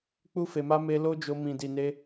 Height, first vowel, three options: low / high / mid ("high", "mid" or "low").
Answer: high